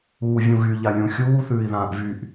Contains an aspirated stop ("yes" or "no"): no